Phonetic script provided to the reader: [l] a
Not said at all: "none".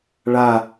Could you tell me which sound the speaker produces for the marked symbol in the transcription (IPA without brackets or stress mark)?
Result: ɭ